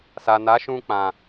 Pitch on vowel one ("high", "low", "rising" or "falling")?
low